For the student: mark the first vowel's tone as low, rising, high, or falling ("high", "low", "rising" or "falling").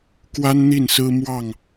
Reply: high